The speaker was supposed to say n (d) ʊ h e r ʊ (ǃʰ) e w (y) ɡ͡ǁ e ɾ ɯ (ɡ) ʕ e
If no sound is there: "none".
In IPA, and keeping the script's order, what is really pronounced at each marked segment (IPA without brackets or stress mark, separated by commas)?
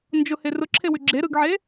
d͡ʒ, ǁʰ, y, ɡ